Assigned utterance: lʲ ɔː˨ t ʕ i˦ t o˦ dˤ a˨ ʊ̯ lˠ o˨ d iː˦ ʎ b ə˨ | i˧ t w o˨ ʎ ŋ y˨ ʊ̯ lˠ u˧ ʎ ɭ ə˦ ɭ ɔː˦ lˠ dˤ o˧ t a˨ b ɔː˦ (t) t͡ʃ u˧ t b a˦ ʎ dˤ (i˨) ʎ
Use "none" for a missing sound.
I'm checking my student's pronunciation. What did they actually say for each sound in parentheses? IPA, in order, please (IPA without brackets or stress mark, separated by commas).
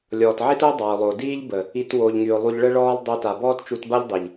t, i˨